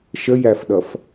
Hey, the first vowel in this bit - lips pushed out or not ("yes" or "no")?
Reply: no